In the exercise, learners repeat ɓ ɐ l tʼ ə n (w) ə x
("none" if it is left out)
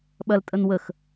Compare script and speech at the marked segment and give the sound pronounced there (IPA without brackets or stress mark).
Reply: w